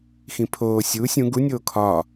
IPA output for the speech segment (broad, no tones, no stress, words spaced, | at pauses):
xĩpʰoː sʲuːsʲ ũɡ unʲoː kʰɒ